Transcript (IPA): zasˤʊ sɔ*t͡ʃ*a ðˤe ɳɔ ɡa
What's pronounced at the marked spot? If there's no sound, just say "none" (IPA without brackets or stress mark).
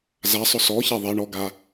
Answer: ç